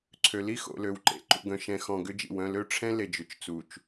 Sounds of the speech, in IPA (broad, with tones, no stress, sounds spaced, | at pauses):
ǀʰ ø˨ l i˦ x o̰˨ l ø˨ w ǃ ḛ˨ ǃ ṵ˨ ɡ œ̃˨ ʃ ɛ̃˨ x ɔ̃˨ ɡ ʏ˦ d͡ʒ ḭ˨ w œ̃˦˨ l ø˦ ʈ͡ʂʰ ɛ̃˦ l e˨ d͡ʒ ʏ˨ t͡ʃ t͡s u˨ t͡ʃ